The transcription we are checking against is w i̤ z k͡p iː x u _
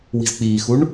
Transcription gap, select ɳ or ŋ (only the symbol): ɳ